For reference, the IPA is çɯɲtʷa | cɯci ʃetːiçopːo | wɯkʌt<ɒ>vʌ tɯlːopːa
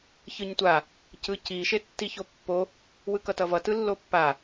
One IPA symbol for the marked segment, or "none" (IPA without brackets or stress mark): ʌ